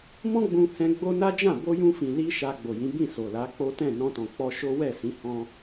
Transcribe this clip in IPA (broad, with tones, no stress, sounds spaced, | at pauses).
m ɔ̃˦ ɡ͡b ũ˧ h ɛ̃˧ ɡ͡b o˦ n a˦ d͡ʒ ã˦˨ b o˧ j ũ˧ f ĩ˨ l i˧ ʃ a˧ ɡ͡b o˨ j ĩ˨˦ b ĩ˦˨ s o˨ l a˨˦ k͡p o˦ t ɛ̃˦˨ n ɔ̃˧ t ɔ̃˨ k͡p ɔ˧ ʃ o˦ w ɛ˦˨ s ĩ˨˦ h ɔ̃˦